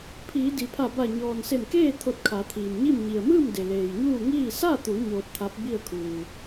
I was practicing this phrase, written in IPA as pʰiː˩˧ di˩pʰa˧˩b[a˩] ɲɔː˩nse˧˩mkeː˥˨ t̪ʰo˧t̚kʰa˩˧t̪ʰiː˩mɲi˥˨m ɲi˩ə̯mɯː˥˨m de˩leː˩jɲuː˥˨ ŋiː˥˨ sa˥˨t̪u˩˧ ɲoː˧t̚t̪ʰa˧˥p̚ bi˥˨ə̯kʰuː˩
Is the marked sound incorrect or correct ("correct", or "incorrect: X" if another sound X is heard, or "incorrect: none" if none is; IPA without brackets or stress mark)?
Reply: incorrect: a˧˩